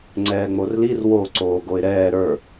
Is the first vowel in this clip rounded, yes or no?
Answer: no